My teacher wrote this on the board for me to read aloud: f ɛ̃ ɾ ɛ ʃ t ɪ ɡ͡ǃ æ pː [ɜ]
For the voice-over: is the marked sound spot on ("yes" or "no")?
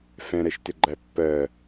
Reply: yes